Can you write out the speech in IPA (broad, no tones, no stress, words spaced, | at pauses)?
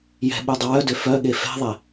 jɛ̤ɓu dˤəwœdø fœɠe fɛ̤ðˤɛ